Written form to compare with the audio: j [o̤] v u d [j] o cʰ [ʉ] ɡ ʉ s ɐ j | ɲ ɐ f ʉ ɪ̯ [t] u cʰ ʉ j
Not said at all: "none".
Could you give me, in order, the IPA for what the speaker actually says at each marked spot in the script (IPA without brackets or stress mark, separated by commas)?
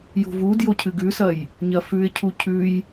o̤, j, ɨ, cʰ